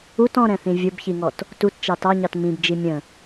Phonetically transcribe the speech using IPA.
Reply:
ut ɔ̃ɾɛ̃θĩ vʲʊbçiŋɔt | tutt͡ʃɑ tɑɲɑt mĩbd͡ʒi mʲə̃

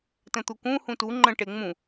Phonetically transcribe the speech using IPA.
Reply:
tə̃t̪ukũ hũtu ŋ͡ǃə̃ʈe ŋ͡mũ

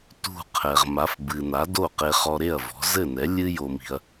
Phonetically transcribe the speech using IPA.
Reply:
tṳ˥˩ qʰɛ˩ʁma˩˥fbɨ˩ na˩˥do˥˩qe˧ χɔ˧ɾe˥˩ɐ̯ vɔ̤˩˥ zɘ˥˩nɛ˩˥ lʲɨ˥ jo˧mi̤˧ɐ̯

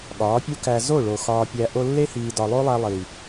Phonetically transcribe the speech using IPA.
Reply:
ɠɒː˨˦pʲu˦kæ˧ zo˦˨ɭo˨ xɒː˧pʲæ˧ ʔo˧lːe˦hiː˨ dɒ˨lˠo˦lˠæ˧ lˠi˨

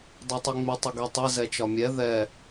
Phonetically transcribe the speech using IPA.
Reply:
dˤɛtˤiŋ͡mɪ tˤɪɡɛtˤɛ zɛt͡ʃɒmʲɛ ðɛ

